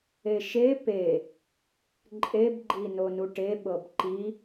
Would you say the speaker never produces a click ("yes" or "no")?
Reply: no